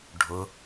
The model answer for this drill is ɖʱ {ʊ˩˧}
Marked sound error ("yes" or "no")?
no